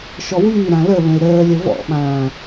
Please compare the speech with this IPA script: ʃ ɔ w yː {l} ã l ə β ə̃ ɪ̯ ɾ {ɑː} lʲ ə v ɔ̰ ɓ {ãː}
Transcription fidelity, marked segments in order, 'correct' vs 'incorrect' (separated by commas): incorrect, incorrect, correct